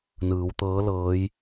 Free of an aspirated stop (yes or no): yes